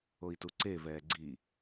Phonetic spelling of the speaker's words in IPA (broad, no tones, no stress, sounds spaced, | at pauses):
o i̯ t u ǀ e v ɛː ɡ͡ǀ i